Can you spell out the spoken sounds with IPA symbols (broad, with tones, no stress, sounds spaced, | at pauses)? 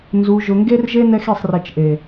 n z u˨ ʒ ʊ˨ ŋ ɡ e˦ r ʒ e˦ n ɛ˦ x e˦˨ sˤ r ɛ˨ t͡ʃ ʔ e˨